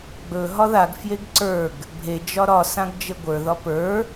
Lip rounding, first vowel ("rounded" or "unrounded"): rounded